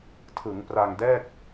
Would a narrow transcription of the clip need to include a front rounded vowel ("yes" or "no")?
no